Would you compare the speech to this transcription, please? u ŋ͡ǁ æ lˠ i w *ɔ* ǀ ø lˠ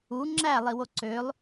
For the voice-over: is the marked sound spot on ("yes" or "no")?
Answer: no